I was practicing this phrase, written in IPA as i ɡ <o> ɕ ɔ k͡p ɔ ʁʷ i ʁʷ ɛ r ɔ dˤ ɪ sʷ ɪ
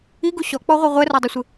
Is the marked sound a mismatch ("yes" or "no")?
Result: yes